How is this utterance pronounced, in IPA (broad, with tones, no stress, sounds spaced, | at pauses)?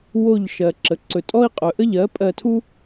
w o˧˩ ʎ ʃ ɜ˩ ǁ ə˩ ǀ ɵ˩ tʼ ɔ˦ i̯ qʼ ɵ˩ ʔ ə˦ ʎ ɜ˩˥ pʼ ɜ˧˩ tʰ u˦